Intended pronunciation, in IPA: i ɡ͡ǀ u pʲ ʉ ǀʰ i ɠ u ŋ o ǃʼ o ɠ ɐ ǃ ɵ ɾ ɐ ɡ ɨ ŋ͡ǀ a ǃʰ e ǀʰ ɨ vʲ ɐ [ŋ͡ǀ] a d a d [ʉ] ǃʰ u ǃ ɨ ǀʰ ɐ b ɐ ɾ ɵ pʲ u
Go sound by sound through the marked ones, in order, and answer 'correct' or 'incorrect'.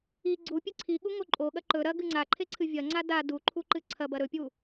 correct, incorrect

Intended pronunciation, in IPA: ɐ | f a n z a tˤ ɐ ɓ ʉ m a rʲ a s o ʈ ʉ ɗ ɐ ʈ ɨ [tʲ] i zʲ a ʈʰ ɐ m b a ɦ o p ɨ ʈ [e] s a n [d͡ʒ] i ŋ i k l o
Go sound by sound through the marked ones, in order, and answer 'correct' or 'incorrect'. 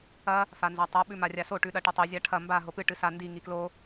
incorrect, incorrect, incorrect

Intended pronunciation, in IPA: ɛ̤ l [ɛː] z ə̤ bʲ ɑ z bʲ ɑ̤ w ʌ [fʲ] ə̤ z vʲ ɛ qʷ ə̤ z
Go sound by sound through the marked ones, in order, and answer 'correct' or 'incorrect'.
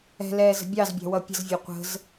correct, incorrect

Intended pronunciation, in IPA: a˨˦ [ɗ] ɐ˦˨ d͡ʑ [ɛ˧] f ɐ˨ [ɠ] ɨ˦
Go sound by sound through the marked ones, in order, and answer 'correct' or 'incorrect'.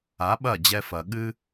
incorrect, correct, correct

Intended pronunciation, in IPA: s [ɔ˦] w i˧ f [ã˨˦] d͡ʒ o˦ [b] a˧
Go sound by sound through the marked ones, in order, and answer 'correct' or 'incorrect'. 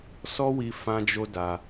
correct, incorrect, incorrect

